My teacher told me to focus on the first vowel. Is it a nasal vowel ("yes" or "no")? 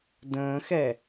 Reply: yes